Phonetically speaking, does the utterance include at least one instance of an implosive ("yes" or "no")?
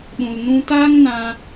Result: yes